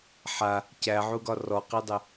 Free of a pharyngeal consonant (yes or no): no